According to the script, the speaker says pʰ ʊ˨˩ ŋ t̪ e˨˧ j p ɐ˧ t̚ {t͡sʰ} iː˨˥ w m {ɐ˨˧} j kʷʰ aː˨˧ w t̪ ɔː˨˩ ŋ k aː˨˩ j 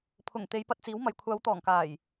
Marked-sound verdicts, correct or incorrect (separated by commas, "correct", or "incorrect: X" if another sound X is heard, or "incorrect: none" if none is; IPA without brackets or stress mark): incorrect: t͡s, incorrect: ɐ˨